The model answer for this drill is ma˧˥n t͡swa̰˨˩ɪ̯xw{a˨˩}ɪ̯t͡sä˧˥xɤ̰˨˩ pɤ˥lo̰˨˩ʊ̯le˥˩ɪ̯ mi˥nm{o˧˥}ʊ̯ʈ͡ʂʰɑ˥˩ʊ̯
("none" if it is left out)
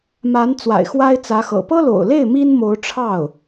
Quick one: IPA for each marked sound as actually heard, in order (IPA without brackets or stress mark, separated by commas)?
a˥, o˧˥